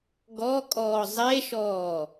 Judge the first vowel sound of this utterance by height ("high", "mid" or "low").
mid